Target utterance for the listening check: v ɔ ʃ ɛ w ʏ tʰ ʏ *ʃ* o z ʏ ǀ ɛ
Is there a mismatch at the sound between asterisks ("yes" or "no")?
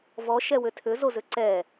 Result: yes